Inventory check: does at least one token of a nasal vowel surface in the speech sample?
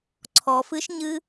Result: no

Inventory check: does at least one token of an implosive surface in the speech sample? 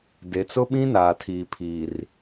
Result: yes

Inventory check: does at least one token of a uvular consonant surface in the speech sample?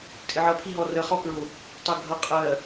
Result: yes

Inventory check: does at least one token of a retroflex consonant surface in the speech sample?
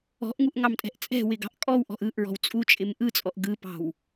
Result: no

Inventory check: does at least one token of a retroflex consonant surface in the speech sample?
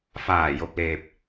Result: no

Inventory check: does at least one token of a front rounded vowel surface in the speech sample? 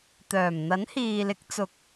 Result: yes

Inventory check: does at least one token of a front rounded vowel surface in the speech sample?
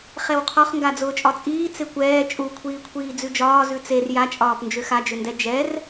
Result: yes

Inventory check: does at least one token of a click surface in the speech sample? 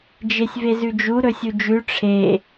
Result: no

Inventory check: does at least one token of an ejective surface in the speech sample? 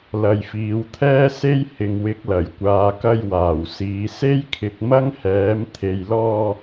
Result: no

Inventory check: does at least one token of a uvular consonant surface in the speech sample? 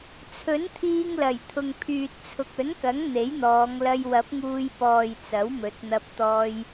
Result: no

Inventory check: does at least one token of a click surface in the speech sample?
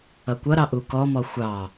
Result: no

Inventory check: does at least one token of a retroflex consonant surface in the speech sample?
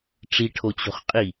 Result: yes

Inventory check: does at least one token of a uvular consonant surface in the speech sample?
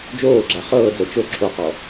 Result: yes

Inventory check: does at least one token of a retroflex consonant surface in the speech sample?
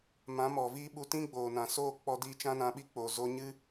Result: no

